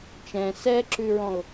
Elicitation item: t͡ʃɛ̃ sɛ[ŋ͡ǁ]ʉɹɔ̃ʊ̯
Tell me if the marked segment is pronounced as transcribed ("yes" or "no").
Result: no